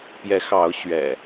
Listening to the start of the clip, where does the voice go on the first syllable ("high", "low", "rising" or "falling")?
rising